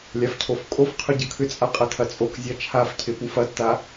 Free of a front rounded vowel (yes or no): no